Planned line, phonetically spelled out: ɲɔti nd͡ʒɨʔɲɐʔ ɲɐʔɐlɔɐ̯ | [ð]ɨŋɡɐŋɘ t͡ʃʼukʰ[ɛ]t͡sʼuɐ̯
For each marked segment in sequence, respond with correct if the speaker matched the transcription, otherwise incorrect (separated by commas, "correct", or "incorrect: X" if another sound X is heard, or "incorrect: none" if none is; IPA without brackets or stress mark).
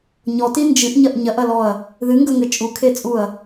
correct, incorrect: e